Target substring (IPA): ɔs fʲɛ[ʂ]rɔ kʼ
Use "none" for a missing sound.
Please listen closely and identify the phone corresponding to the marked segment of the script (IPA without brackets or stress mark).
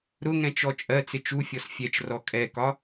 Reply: t͡ʃ